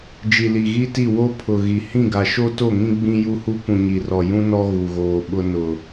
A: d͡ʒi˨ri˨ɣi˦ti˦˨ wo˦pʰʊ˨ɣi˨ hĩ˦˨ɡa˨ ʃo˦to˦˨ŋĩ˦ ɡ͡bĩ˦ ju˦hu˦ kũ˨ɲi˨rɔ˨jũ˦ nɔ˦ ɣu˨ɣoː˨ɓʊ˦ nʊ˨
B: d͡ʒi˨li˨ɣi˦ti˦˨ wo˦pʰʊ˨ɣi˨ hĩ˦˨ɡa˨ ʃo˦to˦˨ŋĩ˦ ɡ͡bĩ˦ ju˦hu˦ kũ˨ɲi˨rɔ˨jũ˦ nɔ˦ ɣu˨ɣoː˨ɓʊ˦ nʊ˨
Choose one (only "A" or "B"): B